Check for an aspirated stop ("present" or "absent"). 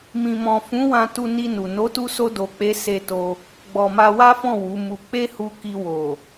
absent